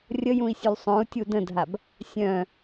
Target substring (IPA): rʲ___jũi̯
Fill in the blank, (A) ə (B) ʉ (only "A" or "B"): A